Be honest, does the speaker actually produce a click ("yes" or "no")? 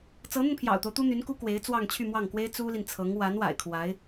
no